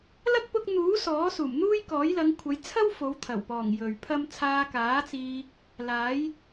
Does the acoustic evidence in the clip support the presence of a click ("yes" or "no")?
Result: no